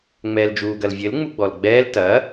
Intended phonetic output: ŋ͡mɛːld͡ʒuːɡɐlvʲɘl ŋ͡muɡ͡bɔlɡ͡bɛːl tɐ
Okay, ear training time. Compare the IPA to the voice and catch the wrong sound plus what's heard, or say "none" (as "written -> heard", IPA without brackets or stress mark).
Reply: none